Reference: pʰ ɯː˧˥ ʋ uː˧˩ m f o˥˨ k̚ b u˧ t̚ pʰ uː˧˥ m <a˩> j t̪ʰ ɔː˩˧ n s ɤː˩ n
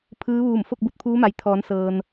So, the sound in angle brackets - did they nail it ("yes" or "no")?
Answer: yes